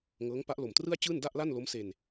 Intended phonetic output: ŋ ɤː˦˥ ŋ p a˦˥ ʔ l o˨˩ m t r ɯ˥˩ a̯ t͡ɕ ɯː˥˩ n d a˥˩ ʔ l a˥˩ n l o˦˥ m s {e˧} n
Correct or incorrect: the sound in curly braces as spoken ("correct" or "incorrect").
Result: correct